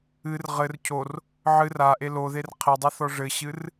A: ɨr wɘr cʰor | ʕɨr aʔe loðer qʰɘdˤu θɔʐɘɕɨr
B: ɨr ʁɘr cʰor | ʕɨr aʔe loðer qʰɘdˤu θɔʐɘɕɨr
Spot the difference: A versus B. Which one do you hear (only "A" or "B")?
B